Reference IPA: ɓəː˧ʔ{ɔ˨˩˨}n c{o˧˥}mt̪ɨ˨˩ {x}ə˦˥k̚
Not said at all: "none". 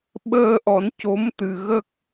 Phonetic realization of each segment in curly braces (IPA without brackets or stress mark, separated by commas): ɔ˨˩˦, o˧˥, ɣ